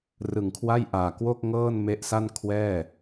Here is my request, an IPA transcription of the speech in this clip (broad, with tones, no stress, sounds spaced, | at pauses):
r ɯ˨˩ ŋ kʰ w a˥˩ j ʔ aː˨˩ k w o˥˩ k̚ ŋ ɤː˥˩ n m e˦˥ ʔ s a˥˩ n kʰ w ɛː˥˩